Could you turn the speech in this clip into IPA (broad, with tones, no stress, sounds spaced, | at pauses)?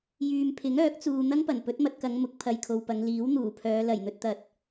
j yː˨ m pʰ ɪ˨˥ ŋ œː˨˥ k̚ t͡s uː˨ n̪ ɐ˥ ŋ p ɐ˨˩ n p ɵ˨˥ t̚ m ɐ˨ t̚ k ɐ˨˧ ŋ m ʊ˨˥ k̚ pʰ ɐ˨ j kʰ o˨ w p ɐ˨˧ ŋ l iː˨˥ w n̪ uː˨˩ pʰ œː˨˧ l ɐ˨˩ j n̪ ɵ˧ t̚ t̪ ɐ˨ t̚